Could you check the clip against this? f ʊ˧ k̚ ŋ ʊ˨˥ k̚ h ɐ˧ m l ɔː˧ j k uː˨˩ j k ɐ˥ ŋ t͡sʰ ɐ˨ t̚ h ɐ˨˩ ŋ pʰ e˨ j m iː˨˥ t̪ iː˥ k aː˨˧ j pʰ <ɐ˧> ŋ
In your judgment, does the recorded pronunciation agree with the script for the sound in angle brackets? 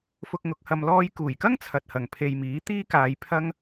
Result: yes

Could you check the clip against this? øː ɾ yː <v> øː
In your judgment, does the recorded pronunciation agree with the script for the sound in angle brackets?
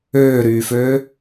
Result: no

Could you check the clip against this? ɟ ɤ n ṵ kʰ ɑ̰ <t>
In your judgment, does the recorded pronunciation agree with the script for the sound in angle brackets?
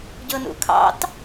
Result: yes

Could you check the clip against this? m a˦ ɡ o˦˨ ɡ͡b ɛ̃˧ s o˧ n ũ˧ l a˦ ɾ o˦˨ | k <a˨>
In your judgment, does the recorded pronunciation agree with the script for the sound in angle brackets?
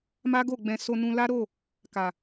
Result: yes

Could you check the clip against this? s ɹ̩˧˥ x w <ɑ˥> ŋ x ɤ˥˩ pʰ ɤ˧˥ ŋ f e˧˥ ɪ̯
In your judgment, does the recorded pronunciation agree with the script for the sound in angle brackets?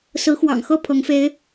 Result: no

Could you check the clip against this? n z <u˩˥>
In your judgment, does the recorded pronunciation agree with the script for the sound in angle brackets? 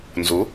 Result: yes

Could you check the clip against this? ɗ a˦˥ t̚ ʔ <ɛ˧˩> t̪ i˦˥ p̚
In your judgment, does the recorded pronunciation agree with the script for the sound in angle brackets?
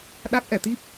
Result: yes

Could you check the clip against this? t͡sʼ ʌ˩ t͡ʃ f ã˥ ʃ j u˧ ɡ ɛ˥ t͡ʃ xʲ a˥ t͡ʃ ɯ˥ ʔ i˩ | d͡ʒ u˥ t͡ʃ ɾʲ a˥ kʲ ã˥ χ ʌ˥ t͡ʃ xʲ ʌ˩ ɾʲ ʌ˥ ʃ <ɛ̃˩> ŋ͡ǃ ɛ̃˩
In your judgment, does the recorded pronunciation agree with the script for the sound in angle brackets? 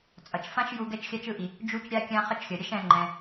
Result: no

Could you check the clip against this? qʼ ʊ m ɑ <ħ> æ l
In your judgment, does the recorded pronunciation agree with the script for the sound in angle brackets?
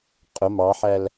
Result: yes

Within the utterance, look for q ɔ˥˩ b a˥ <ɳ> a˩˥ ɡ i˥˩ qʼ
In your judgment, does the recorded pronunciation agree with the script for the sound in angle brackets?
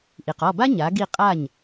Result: no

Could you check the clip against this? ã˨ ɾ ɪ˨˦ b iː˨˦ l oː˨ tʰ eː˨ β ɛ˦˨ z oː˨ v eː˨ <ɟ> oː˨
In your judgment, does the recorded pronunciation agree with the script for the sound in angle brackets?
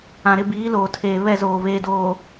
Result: no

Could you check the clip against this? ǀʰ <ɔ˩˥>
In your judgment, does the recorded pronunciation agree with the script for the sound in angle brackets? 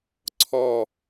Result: no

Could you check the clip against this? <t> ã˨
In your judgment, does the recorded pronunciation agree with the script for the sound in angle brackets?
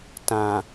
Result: yes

